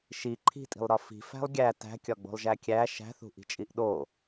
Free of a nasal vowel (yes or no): yes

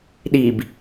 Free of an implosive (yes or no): no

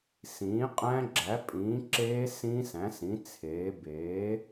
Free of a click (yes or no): no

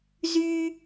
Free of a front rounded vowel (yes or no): no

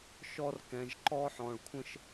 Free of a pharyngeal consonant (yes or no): no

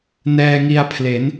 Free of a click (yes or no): yes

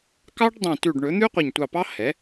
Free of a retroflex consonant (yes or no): no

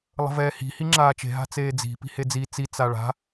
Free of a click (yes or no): no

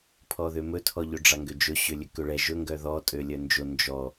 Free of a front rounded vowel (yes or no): no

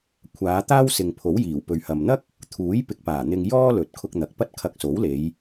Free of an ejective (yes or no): yes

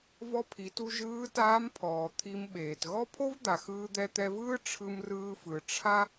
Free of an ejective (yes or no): yes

